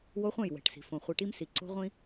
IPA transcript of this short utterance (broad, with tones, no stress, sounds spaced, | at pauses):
w o˦ χʷ ɛ̃˦˨ j w ɛ̤˨ ʈ s i̤˨ f õ˨ χʷ i˨ ʈ i˦ m s i˨ ǀ o̤˦ ʁʷ ĩ˦